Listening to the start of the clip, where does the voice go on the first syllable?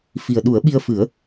low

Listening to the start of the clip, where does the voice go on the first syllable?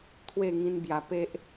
falling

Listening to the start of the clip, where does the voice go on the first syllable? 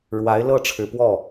rising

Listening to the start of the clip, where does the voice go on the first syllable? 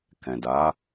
low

